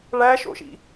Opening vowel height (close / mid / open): open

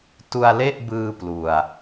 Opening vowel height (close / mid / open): close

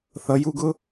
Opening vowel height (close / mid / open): mid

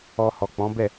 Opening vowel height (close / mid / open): mid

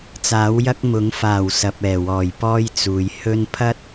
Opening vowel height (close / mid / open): open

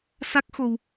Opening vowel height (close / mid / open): open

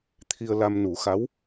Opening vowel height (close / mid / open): close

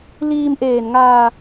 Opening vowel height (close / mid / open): close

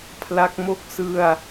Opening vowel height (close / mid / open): open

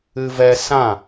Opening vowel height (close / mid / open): close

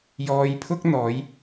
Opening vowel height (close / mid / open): mid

